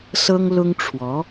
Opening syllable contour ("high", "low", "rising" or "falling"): high